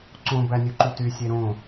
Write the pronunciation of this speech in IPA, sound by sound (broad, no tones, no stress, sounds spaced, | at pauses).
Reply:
ǀ õ b æ nʲ u ǃ u t y sʲ e ɾ õ